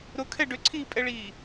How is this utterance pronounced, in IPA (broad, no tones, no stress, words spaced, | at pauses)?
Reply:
ɾʊkʰɛ ɖʏǀʰiːpʼɛɭiː